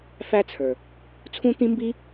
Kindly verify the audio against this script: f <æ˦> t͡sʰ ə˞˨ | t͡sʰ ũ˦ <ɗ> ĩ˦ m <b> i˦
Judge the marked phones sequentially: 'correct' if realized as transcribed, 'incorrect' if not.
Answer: correct, incorrect, correct

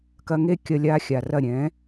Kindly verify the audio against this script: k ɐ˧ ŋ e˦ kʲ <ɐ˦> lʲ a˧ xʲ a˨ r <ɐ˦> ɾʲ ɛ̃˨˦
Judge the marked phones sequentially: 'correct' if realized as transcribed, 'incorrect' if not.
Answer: incorrect, incorrect

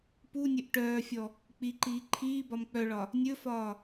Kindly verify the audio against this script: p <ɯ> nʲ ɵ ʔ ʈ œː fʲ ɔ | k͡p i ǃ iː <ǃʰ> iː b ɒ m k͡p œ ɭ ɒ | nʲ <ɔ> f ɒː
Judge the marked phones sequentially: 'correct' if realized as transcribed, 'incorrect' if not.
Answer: incorrect, correct, incorrect

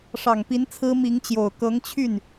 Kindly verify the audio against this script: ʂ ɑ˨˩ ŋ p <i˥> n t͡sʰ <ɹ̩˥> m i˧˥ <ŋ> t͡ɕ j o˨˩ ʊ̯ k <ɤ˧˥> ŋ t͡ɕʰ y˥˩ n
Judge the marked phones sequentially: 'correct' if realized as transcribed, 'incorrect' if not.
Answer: incorrect, correct, correct, correct

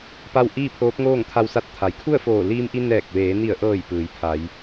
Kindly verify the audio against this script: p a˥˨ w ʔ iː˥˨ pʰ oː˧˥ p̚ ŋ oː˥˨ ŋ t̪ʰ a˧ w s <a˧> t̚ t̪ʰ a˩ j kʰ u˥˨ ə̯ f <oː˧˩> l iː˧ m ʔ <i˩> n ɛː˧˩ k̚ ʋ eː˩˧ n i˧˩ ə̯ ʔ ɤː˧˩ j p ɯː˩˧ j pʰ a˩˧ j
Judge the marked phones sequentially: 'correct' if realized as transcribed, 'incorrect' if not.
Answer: correct, correct, incorrect

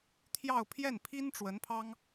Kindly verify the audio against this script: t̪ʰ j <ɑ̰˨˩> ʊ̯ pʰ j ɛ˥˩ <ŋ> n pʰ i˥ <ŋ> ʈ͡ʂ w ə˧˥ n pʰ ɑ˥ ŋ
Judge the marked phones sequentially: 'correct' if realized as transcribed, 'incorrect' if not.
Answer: incorrect, incorrect, incorrect

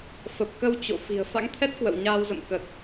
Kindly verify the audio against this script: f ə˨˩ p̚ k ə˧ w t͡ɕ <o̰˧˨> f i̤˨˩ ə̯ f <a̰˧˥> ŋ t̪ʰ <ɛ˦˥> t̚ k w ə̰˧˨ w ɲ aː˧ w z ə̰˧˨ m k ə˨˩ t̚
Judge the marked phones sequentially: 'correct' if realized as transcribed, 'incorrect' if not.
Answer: correct, correct, correct

